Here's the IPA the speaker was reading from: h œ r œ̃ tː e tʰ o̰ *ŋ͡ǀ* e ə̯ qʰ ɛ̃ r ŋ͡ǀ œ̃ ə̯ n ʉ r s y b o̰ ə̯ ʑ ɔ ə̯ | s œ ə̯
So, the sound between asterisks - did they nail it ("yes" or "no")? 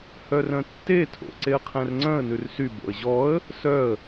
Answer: no